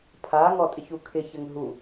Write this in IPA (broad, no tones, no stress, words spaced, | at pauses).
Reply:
pʰa ŋɔtʼɪçukʰɪ çɘŋɦu